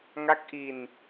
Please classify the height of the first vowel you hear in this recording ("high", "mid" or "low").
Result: low